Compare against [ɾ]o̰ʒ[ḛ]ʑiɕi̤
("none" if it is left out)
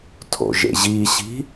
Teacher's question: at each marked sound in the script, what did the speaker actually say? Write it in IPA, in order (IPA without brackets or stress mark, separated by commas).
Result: tʰ, ḛ